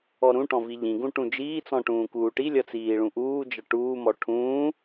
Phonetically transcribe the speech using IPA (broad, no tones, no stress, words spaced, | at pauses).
ɔɾũʈɔ̃ viʎĩɡũ ʈũd͡ʒiːt͡sɔ̃ ʈũːkuːʈilʲʌ t͡siːɭũʔuːd͡ʒʌ ʈuːmɔ ʈʰũː